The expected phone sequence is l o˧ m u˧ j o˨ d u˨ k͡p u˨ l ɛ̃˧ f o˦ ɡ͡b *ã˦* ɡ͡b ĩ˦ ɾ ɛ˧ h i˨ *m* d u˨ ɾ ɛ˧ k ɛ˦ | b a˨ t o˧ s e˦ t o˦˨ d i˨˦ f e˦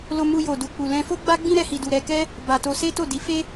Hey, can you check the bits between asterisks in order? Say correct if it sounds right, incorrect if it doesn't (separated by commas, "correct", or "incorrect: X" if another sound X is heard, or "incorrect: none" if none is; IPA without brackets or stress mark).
incorrect: a˦, incorrect: none